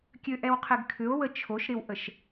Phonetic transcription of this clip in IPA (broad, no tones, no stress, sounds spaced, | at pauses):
kʲ ø ʔ ɛ w qʰ ɪ ɡ kʰ ʏ o̯ w ə t͡ʃʰ o ʃ ɾ ɪ w ʔ ə ʃ